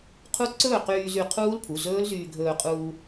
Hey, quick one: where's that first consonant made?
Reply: uvula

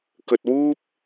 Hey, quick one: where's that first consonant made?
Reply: velum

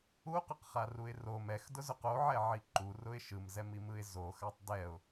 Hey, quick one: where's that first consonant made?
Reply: uvula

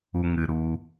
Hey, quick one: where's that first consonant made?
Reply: velum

